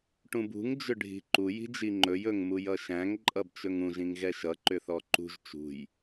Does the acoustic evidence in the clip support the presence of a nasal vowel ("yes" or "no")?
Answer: yes